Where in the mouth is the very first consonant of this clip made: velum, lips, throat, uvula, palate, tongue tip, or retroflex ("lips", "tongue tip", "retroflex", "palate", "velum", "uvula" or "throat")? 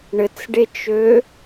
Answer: retroflex